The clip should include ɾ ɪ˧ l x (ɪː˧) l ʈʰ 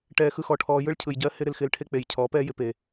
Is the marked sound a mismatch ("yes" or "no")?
no